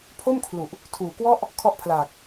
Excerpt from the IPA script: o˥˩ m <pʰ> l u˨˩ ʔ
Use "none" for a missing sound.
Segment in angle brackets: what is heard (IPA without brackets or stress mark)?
kʰ